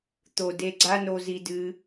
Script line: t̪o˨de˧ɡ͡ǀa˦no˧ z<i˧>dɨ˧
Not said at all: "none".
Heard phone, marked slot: i˧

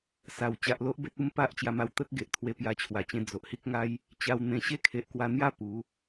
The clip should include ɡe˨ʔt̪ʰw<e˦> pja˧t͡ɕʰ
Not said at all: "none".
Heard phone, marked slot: e˧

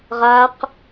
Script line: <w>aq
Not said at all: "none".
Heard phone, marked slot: ʁ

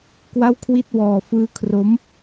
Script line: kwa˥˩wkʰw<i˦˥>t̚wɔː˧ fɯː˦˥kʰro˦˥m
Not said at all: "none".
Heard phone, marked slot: i˥˩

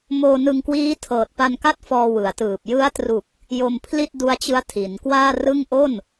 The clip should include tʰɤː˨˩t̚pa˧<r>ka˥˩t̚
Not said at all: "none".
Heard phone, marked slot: n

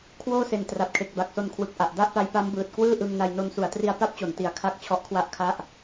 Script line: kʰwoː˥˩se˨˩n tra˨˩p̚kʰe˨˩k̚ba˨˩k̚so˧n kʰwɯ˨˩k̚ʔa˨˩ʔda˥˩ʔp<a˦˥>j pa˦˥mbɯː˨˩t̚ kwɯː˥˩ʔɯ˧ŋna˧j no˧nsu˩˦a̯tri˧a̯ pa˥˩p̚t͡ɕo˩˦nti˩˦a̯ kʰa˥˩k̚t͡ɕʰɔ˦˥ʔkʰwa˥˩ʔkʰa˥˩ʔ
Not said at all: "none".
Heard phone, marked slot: a˦˥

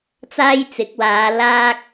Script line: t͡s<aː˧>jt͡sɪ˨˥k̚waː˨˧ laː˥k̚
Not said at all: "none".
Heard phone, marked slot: aː˥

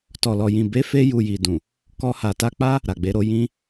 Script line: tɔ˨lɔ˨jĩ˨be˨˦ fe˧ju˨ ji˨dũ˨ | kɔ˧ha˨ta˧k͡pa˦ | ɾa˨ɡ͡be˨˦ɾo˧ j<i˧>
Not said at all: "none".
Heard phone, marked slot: ĩ˧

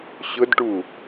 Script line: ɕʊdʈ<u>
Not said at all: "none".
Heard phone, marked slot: u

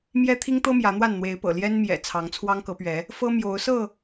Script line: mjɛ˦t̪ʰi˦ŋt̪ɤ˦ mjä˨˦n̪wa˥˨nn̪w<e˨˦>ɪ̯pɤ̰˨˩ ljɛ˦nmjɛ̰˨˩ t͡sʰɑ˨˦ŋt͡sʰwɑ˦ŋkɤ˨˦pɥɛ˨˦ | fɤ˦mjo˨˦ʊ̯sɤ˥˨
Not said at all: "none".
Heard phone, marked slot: e˨˦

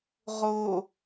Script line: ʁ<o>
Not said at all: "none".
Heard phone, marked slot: o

